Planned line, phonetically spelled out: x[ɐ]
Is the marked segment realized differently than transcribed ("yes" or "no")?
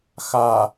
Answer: yes